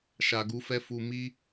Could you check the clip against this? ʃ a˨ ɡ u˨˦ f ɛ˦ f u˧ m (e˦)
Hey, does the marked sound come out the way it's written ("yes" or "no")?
no